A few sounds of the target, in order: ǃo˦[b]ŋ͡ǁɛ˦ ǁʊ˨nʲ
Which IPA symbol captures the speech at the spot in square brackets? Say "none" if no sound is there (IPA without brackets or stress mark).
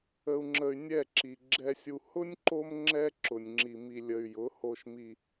m